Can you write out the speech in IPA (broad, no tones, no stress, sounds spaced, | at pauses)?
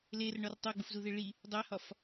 l e r ɳ ɒ r tˤ o ɡ͡b u f z u ð e ɭ i | dˤ æ h ɒ f